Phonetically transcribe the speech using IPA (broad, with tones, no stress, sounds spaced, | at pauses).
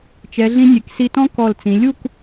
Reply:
t͡ʃ ɛ˩˧ ɮ ĩ˧ nʲ e˩˧ k s i˧ t ɔ̃˥ k ɔ˧˩ l t͡s ĩ˩˧ lʲ u˥˧ k